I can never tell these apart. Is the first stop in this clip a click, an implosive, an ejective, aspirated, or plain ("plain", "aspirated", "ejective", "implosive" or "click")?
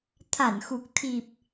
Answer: aspirated